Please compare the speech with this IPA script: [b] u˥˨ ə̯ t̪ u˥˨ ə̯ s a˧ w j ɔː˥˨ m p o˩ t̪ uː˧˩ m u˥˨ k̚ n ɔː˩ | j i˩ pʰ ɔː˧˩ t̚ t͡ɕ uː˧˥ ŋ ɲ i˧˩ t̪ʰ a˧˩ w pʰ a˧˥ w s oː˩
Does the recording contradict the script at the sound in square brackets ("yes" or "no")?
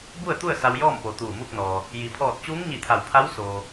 no